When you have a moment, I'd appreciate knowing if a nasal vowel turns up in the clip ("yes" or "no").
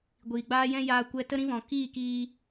yes